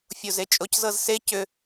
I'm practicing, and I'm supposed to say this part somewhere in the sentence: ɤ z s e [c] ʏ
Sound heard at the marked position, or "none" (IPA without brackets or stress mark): c